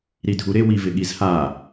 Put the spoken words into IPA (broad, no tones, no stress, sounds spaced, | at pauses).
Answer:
ɾ i dʱ u ɾ ɪ w i v ɪ ɠ i z h a